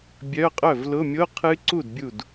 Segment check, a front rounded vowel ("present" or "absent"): present